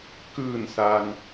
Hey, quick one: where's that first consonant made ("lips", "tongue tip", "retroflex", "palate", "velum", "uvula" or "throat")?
velum